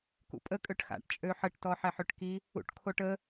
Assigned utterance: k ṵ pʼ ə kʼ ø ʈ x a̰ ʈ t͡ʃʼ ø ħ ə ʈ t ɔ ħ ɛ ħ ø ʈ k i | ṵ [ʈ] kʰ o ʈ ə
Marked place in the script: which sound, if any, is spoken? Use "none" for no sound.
ʈ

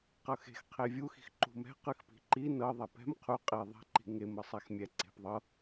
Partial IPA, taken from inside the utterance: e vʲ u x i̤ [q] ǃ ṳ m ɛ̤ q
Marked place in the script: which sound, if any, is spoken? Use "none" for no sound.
x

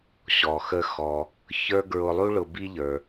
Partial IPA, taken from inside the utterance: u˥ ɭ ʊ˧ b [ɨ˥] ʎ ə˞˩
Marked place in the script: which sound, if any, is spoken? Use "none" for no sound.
i˥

